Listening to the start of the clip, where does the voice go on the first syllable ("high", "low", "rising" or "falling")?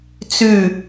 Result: falling